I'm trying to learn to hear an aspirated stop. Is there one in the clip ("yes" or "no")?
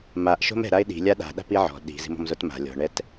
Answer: no